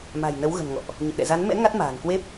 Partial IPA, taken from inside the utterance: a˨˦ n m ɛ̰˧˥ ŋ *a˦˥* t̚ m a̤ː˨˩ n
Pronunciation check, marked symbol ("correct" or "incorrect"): correct